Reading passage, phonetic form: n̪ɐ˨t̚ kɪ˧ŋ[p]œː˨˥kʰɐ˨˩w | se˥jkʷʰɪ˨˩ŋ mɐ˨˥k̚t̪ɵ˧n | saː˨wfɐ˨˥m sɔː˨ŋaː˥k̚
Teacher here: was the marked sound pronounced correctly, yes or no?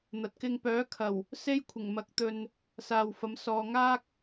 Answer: yes